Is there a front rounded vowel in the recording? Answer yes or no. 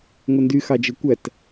yes